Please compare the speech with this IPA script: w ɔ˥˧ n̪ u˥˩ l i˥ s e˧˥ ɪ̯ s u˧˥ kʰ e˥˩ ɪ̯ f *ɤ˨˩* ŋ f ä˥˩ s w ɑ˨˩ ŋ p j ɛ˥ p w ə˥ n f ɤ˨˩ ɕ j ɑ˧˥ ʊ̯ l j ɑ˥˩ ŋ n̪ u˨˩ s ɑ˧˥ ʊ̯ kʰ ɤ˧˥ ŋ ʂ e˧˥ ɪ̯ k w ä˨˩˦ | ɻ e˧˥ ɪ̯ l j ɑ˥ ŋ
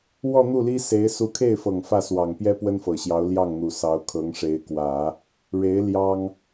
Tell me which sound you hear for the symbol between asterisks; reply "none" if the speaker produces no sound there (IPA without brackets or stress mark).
ɤ˨˩